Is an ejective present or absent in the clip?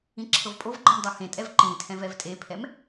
present